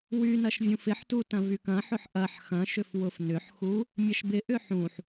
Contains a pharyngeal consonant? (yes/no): yes